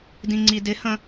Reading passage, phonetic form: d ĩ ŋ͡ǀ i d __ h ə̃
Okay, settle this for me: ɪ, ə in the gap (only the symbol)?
ɪ